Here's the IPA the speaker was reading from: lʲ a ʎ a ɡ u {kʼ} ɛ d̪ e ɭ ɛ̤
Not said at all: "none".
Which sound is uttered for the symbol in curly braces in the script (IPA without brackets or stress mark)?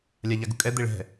kʼ